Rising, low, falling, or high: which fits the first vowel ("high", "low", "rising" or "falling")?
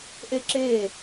falling